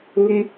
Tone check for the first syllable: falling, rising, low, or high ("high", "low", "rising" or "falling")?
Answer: high